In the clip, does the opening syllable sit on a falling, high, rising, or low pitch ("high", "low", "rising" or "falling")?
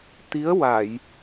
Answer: rising